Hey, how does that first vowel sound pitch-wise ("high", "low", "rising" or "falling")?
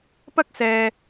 high